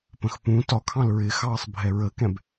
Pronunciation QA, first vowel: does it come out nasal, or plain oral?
nasal